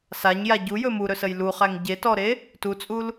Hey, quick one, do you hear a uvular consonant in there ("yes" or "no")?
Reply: yes